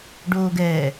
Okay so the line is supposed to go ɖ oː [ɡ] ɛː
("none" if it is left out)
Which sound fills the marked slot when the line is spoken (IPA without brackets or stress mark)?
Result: ɡ